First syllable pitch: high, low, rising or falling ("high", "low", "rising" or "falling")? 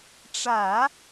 low